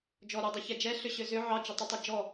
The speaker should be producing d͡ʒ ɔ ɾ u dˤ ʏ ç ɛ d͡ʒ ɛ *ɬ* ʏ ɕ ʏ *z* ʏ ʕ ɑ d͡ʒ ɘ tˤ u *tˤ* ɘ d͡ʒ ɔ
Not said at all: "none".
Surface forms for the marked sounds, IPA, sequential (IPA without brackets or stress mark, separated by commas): ɬ, z, tˤ